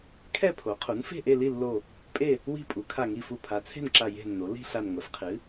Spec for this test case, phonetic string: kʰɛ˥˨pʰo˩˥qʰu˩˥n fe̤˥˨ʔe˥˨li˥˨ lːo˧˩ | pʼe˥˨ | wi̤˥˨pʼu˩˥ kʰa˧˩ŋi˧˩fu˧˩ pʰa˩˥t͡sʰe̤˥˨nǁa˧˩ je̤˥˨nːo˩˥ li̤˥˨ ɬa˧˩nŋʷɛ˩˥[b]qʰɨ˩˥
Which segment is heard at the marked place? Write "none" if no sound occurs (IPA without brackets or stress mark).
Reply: f